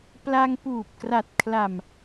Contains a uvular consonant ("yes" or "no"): no